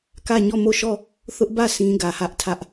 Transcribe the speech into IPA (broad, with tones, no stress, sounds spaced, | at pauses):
k ä˦˨ ɲ ɔ˦˨ m o˦˨ ʃ ɔ˦˨ | θ ʊ˦ ʔ b ä˦˨ sʰ ĩ˦ ɡ ä˨ h ä˦ ʔ tʰ ä˦ ʔ